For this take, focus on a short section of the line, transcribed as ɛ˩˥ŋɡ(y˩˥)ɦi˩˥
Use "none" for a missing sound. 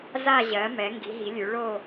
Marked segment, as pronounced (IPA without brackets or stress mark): i˩˥